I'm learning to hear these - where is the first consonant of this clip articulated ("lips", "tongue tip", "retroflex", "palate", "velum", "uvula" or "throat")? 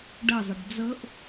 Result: retroflex